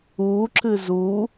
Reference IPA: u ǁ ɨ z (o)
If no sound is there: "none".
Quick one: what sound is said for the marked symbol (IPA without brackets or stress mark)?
u